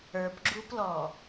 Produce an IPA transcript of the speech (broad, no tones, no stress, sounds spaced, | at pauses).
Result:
ə˞ p ɡ͡ǁ u p l ɔ